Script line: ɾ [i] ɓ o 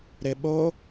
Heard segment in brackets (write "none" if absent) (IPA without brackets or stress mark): ɪ